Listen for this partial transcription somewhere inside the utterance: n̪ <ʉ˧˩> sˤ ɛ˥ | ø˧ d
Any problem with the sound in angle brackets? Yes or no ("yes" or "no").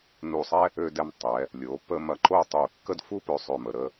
yes